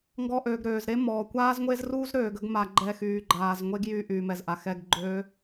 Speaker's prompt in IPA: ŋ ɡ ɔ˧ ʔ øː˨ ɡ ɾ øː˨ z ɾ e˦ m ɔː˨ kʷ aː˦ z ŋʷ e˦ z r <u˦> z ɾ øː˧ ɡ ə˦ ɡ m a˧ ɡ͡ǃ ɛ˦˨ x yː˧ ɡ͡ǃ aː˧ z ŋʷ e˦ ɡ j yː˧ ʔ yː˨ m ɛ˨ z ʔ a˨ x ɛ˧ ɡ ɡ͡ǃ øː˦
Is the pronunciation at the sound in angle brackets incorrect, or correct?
correct